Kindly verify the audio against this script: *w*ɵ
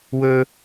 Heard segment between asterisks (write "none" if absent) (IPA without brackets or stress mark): w